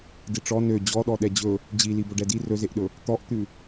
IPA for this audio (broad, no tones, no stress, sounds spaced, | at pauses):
d i ʈ͡ʂ ɔ n ø d͡ʑ ɔ ɗ ɔ ɗ ɛ d͡ʑ ɵ | d͡ʑ i l i b ɵ ɖ ɛ d i r ɵ z e ʔ ɗ ɵ | t̪ ɔ ʔ t̪ ʉ